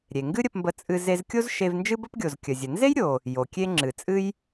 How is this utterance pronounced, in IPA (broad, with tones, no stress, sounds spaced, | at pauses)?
ɾʲ e˩ ŋ ɡ ɨ˥ ɾʲ ə˧ p m b ə˧ t͡sʼ ɨ˧ z e˧ z kʲ o˥ z ʃ e˧ v n d͡ʒ ɨ˥ b ə˥ p ɡʲ o˩ z kʲ ə˩ zʲ ə˩ n z e˥ j ɾʲ o˩ | j o˩ kʲ e˧ ŋ͡ǁ ɨ˩ t͡sʼ ɨ˧ j